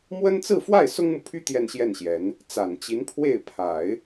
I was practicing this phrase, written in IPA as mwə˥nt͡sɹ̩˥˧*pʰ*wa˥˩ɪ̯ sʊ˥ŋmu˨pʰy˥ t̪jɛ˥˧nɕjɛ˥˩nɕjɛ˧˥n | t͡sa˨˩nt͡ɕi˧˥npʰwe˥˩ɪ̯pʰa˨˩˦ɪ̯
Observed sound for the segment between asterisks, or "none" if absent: f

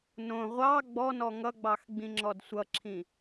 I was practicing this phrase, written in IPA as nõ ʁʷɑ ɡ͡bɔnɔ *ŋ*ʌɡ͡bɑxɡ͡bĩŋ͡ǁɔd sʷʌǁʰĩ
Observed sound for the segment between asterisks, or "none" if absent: ŋ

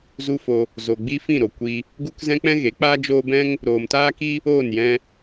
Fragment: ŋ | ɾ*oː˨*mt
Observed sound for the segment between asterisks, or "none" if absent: oː˨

